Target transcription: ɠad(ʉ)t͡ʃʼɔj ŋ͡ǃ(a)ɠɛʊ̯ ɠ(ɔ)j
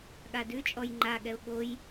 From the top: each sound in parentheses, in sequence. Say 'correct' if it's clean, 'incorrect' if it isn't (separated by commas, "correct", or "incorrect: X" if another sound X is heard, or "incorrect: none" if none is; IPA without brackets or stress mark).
correct, correct, incorrect: o